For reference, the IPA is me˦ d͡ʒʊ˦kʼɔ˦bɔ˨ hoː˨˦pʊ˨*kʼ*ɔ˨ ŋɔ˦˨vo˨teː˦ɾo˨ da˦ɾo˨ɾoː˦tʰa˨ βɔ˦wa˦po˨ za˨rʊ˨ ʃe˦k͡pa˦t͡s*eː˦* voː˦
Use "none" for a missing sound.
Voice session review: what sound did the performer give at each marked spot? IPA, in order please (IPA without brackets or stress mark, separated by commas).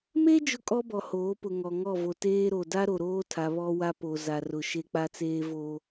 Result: ŋ, eː˦